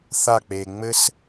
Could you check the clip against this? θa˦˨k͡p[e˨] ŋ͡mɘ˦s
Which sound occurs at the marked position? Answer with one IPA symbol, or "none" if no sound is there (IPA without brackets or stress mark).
e˨